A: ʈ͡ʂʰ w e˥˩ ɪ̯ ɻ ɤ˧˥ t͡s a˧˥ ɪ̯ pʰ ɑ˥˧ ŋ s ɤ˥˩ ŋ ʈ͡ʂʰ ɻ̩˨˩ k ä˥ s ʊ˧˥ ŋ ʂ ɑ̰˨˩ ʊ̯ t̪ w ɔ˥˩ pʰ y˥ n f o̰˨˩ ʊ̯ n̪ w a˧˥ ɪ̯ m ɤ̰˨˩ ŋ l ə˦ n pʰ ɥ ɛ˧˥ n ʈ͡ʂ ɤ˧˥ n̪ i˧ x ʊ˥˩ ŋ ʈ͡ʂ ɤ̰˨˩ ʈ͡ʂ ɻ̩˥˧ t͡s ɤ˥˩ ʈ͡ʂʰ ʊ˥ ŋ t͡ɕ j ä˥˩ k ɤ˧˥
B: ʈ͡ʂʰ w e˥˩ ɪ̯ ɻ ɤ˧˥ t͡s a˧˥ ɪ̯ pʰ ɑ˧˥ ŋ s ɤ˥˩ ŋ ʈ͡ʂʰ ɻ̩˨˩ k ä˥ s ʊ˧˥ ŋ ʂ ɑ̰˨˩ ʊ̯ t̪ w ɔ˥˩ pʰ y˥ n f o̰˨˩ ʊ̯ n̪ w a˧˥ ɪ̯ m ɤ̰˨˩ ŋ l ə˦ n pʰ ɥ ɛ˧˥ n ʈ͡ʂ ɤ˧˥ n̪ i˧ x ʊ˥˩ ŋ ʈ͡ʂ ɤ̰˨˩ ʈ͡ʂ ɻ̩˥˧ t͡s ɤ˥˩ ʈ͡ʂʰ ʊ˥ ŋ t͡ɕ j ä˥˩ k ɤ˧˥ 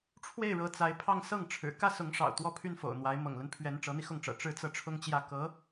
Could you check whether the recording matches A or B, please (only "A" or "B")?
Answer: A